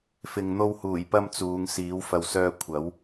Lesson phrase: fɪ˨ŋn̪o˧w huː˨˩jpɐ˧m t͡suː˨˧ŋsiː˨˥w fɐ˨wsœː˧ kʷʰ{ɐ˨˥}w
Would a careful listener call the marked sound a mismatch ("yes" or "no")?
no